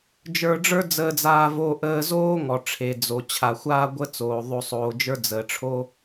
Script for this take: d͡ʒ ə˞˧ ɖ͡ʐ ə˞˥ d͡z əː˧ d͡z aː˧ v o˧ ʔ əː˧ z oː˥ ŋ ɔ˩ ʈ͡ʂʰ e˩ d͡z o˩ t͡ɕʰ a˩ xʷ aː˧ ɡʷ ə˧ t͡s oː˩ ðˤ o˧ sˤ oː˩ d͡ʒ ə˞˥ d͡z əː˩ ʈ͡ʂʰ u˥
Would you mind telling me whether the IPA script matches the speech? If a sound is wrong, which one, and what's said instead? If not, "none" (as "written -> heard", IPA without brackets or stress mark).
u˥ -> o˥